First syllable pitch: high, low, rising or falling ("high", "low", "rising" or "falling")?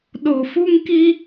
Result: low